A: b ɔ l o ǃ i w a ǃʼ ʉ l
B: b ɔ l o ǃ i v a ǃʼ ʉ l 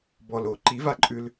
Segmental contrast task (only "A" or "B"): B